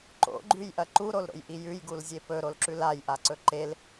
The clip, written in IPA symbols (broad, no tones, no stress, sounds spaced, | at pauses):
ǃ o̰ ɡ͡ǃ ʉ j ʔ ɐ ǃ u ɾ o l ɾ o̰ j ʔ i j ʉ j ɡ u l zʲ e p ɵ ɾ o l ǁ ʉ l a j ʔ a ǀ ɵ ǃ e l